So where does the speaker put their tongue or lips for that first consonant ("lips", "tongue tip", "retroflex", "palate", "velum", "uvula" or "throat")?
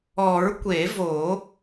tongue tip